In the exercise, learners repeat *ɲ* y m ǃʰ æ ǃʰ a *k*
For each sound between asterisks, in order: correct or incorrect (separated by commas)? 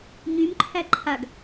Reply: correct, incorrect